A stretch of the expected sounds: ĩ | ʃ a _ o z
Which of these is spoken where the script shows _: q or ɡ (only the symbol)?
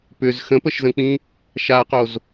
q